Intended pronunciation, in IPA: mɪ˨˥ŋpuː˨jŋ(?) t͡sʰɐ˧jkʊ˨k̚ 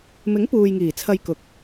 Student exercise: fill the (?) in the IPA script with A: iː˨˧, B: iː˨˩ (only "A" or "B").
B